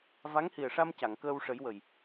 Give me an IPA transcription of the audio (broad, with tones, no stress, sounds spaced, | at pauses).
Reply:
v a˧˥ ŋ h i˨˩ ə̯ ʂ a˧ m c a˨˩˨ ŋ k əː˧ w ʂ ə˨˩˦ j w ə˨˩ j